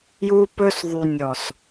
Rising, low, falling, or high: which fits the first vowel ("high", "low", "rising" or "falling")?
high